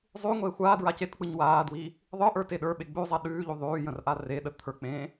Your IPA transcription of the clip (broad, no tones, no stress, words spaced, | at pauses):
zˤʉŋʷe xʷaː dɹacetk͡pɯɲ waːdwi | ðˤɯʔə˞ teɗə˞ɓe ɡ͡bʉzˤa ɗʉːʎu ðˤʉːjə̃r ʔareɗə t̪ʰə˞k͡pẽː